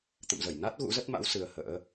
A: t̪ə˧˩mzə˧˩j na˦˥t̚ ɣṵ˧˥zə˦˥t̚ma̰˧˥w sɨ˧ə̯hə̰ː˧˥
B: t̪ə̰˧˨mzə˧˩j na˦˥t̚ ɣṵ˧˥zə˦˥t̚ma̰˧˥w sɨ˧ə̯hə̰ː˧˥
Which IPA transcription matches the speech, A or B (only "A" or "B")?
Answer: B